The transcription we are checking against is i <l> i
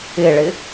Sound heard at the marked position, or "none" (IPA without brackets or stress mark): ɭ